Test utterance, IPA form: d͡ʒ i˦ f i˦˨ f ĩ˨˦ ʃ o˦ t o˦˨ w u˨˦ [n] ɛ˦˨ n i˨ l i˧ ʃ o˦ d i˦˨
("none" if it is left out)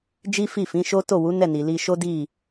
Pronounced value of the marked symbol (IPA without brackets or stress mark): n